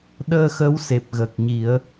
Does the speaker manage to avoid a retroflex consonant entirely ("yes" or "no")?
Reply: yes